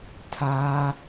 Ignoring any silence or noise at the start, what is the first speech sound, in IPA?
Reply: tʰ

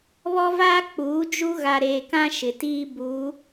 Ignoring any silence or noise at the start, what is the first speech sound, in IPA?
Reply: β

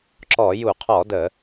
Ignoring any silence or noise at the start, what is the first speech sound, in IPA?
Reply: ǁ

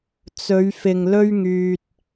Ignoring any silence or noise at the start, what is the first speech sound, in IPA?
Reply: t͡s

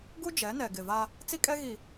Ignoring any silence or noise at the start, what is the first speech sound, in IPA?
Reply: ɡ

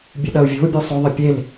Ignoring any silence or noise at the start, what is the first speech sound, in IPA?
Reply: bʲ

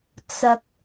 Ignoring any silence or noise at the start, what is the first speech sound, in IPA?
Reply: t͡s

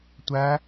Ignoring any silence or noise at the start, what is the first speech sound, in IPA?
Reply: tʷ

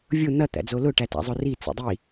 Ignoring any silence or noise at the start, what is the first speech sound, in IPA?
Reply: vʲ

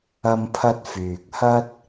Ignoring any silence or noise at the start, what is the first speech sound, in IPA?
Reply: ɐ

